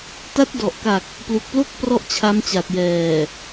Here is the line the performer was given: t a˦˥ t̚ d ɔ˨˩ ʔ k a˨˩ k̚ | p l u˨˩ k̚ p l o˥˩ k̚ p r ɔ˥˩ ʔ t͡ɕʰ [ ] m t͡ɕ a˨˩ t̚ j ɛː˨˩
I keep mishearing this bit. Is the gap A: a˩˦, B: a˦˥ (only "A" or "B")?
B